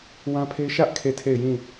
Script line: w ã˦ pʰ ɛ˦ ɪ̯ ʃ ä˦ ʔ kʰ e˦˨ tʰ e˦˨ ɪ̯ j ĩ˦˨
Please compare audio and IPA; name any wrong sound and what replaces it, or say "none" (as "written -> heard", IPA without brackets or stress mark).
ɛ˦ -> e˦